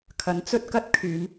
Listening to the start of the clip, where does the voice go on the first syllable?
rising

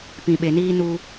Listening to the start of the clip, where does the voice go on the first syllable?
low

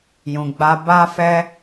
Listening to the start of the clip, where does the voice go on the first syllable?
low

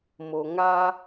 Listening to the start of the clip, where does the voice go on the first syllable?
low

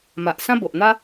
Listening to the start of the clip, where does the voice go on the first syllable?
low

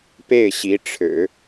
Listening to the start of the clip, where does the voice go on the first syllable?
falling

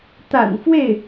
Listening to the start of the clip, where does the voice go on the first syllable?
low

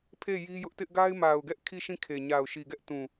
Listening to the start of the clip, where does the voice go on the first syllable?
falling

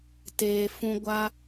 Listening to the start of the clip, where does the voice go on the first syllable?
low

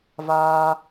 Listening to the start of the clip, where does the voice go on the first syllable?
high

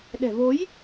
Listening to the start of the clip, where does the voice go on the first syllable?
low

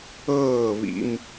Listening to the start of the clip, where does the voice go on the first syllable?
falling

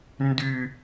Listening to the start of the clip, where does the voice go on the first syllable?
high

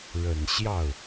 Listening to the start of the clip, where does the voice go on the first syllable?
low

